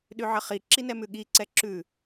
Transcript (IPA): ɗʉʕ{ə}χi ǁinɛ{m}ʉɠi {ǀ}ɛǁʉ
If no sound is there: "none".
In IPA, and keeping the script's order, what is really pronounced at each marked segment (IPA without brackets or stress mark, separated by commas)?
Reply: ə, m, ǀ